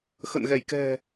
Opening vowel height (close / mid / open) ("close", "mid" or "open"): mid